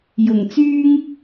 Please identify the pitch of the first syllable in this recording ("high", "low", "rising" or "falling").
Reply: low